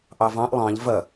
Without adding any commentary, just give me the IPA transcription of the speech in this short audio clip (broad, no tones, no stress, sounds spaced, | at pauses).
ʔ ɑ v ɑ̃ ʔ lˠ ɑ̃ ʎ v ɐ